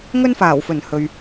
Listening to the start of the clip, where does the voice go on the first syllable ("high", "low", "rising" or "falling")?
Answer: high